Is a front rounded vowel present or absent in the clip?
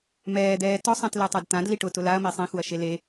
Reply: absent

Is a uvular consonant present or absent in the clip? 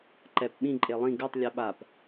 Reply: absent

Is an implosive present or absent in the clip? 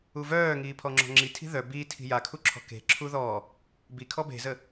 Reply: absent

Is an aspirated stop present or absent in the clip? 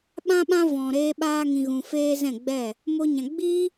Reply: absent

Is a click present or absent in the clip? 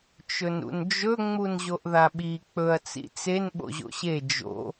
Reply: absent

